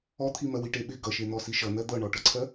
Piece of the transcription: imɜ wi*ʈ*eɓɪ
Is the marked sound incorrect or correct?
correct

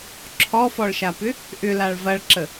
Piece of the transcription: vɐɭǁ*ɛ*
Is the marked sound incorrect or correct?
incorrect: ə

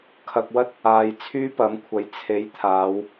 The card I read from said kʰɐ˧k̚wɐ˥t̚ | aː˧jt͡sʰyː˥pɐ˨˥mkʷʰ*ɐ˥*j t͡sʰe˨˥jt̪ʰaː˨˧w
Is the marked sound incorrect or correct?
incorrect: ɐ˨˥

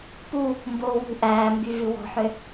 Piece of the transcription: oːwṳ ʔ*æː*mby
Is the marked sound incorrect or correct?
correct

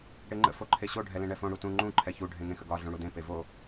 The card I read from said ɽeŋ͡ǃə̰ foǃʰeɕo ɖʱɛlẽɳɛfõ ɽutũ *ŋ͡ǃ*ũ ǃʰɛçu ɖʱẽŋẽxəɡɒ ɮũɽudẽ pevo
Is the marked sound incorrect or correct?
correct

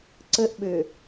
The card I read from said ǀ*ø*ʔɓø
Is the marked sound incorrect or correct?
incorrect: ə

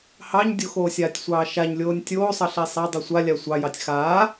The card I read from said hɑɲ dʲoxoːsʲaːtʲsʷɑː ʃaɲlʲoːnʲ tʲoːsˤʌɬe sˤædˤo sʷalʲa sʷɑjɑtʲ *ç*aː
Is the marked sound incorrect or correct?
incorrect: x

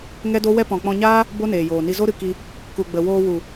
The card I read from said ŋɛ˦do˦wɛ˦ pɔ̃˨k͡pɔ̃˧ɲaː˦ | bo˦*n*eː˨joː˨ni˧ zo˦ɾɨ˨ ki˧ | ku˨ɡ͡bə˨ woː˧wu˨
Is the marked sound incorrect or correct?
correct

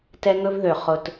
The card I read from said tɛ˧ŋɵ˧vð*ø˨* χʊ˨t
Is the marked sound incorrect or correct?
correct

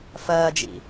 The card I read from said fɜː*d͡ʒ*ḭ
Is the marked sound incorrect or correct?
correct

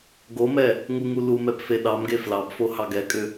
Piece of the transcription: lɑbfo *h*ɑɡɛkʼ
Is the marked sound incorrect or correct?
correct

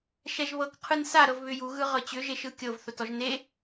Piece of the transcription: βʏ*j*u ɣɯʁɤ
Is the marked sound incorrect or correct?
correct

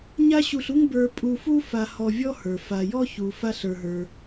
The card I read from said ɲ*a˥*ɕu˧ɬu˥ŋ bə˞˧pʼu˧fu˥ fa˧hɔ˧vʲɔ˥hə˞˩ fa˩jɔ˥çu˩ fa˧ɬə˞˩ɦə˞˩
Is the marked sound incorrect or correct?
correct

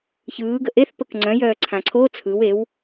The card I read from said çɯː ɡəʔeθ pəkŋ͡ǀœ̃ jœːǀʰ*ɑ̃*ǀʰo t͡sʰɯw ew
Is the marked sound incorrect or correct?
incorrect: ã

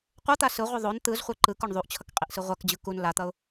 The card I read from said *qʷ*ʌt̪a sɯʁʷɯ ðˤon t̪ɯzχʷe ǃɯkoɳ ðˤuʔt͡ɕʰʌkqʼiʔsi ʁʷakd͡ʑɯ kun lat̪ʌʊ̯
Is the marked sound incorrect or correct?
correct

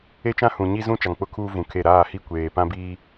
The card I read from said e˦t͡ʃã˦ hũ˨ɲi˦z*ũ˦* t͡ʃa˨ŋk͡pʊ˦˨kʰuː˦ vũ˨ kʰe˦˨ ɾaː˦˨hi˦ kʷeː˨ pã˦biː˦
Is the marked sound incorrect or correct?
correct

